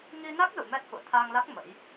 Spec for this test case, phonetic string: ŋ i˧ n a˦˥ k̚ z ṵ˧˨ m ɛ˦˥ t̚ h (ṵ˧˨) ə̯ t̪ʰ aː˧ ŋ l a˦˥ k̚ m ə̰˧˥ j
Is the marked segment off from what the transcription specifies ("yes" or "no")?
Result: no